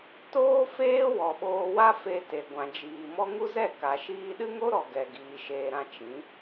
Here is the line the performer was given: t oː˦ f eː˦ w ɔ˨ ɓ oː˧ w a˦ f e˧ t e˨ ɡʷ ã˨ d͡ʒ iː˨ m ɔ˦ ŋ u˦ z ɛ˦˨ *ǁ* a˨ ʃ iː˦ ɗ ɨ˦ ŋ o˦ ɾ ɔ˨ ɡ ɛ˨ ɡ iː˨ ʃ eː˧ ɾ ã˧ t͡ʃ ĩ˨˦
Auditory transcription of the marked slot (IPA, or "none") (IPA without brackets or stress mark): k